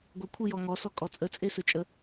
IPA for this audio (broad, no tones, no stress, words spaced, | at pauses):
ɡʷəkʷʰɨ jɔŋɔsɔ kʼɔt͡sʼət͡sʼesɵ t͡ʃʼə